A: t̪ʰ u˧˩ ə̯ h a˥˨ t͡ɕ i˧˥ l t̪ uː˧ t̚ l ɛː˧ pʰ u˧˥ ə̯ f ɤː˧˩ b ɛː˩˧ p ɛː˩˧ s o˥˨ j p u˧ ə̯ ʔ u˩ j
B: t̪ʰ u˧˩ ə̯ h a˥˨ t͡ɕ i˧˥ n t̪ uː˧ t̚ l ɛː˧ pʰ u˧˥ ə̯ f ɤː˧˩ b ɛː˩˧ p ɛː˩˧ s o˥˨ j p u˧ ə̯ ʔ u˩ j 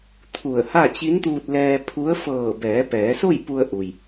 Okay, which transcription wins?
B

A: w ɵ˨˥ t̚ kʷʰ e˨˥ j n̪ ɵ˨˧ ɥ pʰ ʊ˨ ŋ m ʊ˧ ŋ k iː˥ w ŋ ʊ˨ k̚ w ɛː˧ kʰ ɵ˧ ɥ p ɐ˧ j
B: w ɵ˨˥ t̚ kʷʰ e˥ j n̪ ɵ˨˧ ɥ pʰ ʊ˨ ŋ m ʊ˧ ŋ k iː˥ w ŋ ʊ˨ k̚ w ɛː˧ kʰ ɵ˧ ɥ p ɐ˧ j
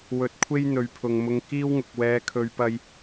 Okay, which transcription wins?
B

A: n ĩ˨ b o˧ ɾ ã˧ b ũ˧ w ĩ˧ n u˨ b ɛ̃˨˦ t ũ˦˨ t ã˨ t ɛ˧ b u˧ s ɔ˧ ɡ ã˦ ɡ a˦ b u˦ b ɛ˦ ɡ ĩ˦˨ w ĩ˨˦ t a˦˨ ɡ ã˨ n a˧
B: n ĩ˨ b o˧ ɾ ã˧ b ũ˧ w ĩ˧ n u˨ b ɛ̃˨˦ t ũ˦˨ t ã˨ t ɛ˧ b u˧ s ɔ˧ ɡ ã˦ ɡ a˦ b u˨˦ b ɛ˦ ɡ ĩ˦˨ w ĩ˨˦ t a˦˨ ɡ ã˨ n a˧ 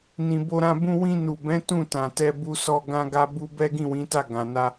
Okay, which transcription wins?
A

